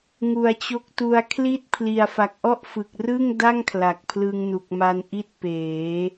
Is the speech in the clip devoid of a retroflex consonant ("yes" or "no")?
yes